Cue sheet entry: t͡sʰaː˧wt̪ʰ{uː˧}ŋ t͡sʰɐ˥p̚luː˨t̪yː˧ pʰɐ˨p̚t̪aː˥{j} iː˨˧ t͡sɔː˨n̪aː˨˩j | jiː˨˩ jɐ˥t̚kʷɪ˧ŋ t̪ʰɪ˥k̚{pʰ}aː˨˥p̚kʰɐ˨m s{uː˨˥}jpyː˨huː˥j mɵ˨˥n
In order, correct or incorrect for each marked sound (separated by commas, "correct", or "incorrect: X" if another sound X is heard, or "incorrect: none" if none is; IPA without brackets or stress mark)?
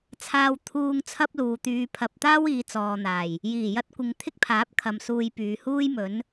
correct, incorrect: w, correct, incorrect: uː˧